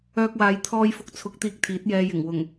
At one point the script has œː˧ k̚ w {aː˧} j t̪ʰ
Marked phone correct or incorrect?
incorrect